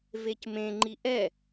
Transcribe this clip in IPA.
v e c m ẽ ŋ͡ǃ i ʔ ɛ

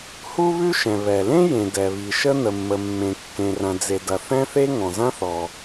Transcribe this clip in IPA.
h u˥ β ʉ˥ ʃ ɛ̃˩ β ɛ˩ l ẽ˥ j ẽ˩ d ɛ˩ β i˩ ʃ ə˥ n̪ ə˩ mː ə˩ mː ẽ˩ kː ẽ˩ r ɐ̃˩ d͡z e˩ d ɐ˩ θ ɛ̃˥ θ e˥ ŋ ɔ̃˩ z ɐ̃˥ θ ɔ˩

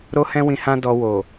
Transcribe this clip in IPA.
ɾ o˦ h ɛ̃˦ w ĩ˧ h ã˦ d ɔ˧ w o˨

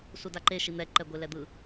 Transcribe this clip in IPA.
s u d a ǃ e ʃ i n̪ ɛ ǃ ɛ ɡʷ e l ɛ d̪ ɯ

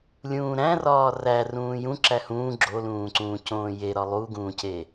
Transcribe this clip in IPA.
lʲ ũː ɾ æ̃ r ɒː r æ r ũː j ũ ǁ æ h ũː ɡ͡ǁ o l ũː ǀ ũː c õː j e ɾ ɒ lˠ u ɡ ũː c e

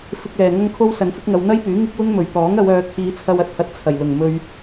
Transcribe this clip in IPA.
f ɪ˧ k̚ l ɛː˨ ŋ ɐ˥ ŋ kʰ o˥ w s ɐ˨˧ n f ɪ˨˥ k̚ ŋ ɐ˨˧ w n̪ ɐ˥ j p yː˨˥ ŋ ɪ˥ k̚ w ʊ˥ ŋ m ɵ˨˩ ɥ t̪ ɔː˨˥ ŋ ɐ˨˧ w œː˨˧ t̪ʰ iː˨˧ t͡sʰ ɐ˧ w ɐ˧ t̚ h ɐ˧ t̚ t͡sʰ ɐ˨˩ j l ʊ˨˩ ŋ m ɵ˧ ɥ

